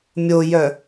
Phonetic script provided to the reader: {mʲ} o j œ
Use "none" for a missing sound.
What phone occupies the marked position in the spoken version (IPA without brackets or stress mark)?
mʲ